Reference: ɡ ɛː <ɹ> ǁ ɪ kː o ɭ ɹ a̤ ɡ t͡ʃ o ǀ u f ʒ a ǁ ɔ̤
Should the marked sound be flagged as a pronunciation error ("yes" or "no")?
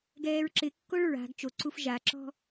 no